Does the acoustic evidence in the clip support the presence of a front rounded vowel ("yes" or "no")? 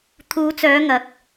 yes